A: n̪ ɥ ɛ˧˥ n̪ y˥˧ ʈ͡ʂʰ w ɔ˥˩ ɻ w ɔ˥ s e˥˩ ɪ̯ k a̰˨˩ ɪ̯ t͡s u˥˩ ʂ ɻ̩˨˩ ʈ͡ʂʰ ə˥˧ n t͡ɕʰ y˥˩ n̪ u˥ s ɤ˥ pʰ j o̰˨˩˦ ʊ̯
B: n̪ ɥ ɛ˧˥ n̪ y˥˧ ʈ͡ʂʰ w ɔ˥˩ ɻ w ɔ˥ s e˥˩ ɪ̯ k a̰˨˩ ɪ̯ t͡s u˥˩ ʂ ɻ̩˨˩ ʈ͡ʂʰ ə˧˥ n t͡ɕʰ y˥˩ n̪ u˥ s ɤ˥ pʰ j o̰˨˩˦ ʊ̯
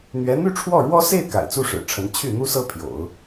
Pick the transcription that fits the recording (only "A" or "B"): B